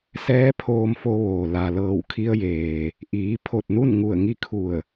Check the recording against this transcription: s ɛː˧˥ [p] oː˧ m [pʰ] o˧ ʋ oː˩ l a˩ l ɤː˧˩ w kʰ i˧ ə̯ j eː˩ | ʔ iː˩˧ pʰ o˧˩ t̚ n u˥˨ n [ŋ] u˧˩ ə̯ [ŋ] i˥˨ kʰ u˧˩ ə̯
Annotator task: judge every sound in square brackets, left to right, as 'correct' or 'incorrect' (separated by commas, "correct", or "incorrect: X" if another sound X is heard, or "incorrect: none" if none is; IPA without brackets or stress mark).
incorrect: pʰ, incorrect: f, correct, correct